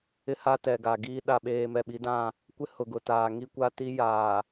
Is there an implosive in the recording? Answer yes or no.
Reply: yes